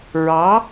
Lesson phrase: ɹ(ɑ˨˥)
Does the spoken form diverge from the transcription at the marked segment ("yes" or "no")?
no